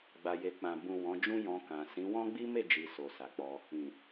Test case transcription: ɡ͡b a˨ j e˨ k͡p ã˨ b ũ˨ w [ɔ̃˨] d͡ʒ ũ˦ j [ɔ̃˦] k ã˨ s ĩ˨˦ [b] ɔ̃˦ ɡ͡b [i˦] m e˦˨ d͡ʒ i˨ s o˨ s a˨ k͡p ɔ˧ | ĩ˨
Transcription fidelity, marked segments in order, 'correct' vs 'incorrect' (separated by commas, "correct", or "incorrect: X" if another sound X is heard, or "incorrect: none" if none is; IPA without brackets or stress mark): incorrect: ɔ̃˨˦, incorrect: ɔ̃˧, incorrect: w, correct